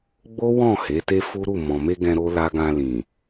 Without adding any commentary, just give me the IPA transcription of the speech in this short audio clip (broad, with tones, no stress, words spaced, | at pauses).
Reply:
ɡ͡bo˦wɔ̃˦˨ he˨˦te˦ fu˦ɾu˦˨ mɔ̃˨me˧ ɡɛ̃˧ ɾo˦la˦ ɡã˧lĩ˨